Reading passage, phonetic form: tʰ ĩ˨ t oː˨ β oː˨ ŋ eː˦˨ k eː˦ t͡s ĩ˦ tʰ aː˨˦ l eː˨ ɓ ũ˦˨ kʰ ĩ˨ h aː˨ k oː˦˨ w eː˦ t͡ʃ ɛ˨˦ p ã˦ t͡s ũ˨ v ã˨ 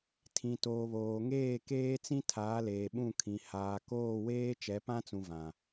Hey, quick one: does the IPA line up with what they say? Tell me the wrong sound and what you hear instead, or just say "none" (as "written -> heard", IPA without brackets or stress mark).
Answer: none